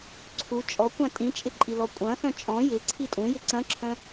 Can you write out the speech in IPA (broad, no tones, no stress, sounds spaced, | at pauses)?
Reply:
ǀʰ u t͡ʃʼ ɔ kʷ ã tʼ ĩ t͡ʃʼ ɪ ǃʼ i l ɔ kʷʼ ɐ̃ x œ̃ t͡ʃʼ ɔ̃ j ɪ ǀʰ i tʼ ũ j ɪ ǀ ɐ̃ ǁʰ œ̃